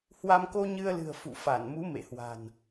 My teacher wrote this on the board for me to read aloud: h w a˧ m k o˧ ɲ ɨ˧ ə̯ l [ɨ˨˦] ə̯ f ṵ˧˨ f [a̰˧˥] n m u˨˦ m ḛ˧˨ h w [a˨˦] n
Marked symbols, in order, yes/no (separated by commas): no, no, no